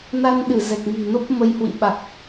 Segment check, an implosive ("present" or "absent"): present